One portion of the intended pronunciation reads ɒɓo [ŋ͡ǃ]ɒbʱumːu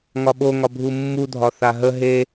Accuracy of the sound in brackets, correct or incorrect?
incorrect